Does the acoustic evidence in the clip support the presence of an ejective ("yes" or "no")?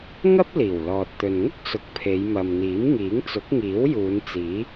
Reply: no